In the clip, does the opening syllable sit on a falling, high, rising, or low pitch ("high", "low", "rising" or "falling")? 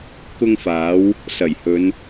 high